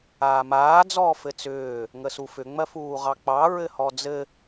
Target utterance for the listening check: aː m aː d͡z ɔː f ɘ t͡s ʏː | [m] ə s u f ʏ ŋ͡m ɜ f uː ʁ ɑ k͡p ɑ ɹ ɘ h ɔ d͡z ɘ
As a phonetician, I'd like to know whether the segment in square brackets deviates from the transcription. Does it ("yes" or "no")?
yes